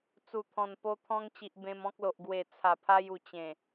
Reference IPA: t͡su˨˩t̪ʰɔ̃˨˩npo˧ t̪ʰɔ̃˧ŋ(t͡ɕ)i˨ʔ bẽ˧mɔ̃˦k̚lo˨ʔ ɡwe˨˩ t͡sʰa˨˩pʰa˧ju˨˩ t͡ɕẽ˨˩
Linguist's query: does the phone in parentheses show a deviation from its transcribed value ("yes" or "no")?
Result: no